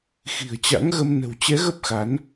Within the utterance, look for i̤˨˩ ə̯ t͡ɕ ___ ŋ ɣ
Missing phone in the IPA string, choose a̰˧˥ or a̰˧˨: a̰˧˥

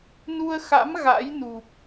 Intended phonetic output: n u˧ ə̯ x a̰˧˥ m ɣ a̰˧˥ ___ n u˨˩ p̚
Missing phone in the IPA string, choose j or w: j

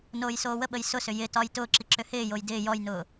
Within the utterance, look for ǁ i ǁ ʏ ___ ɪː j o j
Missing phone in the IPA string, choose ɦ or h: h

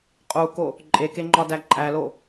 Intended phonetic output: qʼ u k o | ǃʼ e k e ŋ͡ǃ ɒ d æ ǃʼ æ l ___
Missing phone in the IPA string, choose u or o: o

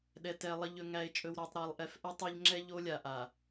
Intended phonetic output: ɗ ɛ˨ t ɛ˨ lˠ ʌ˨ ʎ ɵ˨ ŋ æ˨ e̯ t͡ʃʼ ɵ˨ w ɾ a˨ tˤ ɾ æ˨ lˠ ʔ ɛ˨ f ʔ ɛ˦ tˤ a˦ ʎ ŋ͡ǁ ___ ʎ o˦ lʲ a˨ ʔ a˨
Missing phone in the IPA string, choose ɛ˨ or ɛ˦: ɛ˦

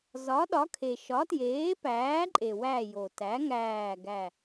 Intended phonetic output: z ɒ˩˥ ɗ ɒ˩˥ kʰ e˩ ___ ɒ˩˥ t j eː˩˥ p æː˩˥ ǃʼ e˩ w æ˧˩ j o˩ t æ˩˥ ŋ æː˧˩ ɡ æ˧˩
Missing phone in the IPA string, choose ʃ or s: ʃ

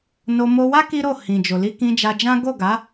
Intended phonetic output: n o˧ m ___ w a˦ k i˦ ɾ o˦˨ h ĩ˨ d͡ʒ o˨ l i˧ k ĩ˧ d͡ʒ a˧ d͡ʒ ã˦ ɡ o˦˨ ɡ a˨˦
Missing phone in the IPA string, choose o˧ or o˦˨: o˧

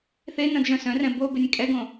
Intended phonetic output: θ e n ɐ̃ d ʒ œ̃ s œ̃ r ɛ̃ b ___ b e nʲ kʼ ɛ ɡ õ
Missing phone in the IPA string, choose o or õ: o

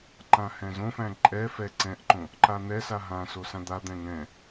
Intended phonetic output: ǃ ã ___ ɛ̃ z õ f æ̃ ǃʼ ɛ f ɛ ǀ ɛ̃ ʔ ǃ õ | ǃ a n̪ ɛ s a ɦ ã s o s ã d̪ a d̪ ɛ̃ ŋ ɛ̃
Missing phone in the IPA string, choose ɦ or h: h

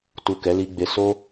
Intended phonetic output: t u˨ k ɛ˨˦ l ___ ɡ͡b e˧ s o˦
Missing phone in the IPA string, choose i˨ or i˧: i˧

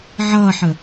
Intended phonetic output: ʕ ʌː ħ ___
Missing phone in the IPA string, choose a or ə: ə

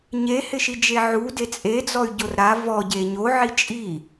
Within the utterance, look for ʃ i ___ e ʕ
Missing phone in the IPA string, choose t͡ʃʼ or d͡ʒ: d͡ʒ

